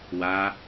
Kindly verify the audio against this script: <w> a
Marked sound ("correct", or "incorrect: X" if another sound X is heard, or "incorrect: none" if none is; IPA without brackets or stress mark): correct